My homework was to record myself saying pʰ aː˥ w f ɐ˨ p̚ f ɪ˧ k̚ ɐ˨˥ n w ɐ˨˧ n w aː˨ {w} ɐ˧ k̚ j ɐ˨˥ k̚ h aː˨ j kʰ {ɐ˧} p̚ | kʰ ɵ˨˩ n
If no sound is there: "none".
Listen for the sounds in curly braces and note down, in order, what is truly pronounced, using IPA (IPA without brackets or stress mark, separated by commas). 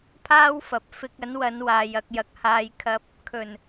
j, ɐ˧